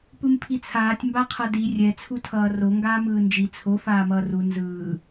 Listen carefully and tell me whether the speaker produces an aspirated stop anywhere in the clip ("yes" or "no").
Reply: yes